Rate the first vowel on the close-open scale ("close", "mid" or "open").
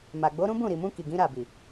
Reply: open